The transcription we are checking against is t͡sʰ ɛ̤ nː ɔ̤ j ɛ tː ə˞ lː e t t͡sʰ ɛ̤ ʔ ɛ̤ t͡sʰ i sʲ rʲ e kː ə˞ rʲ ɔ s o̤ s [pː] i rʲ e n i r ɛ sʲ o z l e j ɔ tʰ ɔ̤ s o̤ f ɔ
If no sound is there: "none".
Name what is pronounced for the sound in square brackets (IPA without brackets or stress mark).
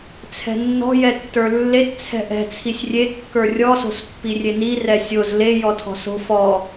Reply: pː